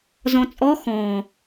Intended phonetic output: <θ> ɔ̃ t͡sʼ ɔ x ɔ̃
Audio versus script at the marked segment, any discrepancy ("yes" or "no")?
yes